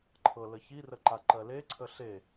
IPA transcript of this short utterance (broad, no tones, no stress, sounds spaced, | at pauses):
ǃʰ ɤ l ə ç i r ə ǃ a ǃ ɜ l e ǀʰ ə ɬ e